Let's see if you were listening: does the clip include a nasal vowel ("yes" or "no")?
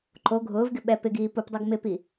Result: no